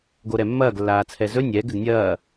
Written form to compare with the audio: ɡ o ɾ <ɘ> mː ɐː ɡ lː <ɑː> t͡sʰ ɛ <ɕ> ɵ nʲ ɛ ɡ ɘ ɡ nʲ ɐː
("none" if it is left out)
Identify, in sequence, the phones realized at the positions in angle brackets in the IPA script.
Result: ɛ, aː, z

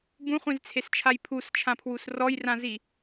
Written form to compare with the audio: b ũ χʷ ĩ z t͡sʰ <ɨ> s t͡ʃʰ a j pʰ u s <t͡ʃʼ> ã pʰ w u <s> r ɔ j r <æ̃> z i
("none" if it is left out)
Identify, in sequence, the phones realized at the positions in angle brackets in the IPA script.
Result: e, t͡ʃʰ, s, ã

